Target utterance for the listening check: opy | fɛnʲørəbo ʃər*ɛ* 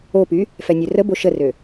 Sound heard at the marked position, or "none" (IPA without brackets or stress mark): ø